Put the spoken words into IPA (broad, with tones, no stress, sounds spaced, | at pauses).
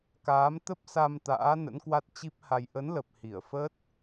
k aː˨˦ m t̪ ə˦˥ p̚ s a˧ m t̪ a̰ː˧˥ n ə̰˧˥ n k w a˦˥ t̚ t͡ɕ i˦˥ p̚ h a˧ j ʔ ə˨˦ n l ə˨˩ p̚ h i˧˩ ə̯ f ə˦˥ t̚